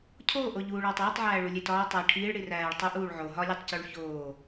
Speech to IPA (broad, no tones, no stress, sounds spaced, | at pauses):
cʰ oː ʔ o ʎ uː ɭ ɒː tˤ eː tˤ ʕ æː ɭ u lʲ e t ɒː tˤ æ ʈʰ iː ɭ ɽ i r æː ɭ tˤ u ʔ uː ɭ ʕ o ɦ ɒ lʲ e tˤ c u ɭ ç oː